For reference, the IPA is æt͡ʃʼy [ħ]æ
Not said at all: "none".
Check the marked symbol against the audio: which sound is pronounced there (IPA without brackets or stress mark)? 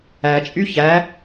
ç